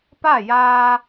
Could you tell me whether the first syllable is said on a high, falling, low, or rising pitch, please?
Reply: falling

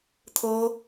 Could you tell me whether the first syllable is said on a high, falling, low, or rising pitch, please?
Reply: high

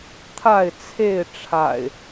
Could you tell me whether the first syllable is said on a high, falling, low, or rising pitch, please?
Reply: falling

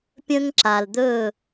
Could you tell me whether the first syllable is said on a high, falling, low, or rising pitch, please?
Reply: high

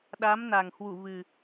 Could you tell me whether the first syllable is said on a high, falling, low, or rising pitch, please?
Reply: rising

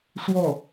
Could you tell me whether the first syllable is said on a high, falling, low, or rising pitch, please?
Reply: falling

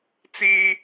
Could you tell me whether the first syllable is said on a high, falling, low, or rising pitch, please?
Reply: high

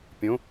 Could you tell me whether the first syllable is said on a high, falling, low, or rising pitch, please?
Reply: rising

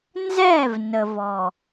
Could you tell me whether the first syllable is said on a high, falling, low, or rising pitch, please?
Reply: falling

